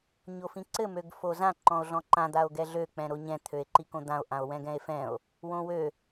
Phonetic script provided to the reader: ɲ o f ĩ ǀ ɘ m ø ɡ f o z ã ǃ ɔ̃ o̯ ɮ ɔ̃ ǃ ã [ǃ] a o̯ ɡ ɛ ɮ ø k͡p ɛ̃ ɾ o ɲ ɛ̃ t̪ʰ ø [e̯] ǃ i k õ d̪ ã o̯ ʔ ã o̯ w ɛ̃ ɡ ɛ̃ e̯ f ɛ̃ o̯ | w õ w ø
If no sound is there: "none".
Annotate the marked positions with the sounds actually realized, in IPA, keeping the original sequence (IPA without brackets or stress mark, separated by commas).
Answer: d̪, e̯